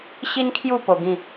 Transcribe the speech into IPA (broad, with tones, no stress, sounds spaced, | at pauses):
ɕ i˦ n kʰ j u˥˧ p o˧ ɡ ĩ˥˧